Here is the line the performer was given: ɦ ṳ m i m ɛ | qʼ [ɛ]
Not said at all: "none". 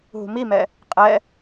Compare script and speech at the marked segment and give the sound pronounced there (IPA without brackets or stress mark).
ɛ